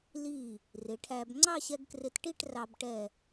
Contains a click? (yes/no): yes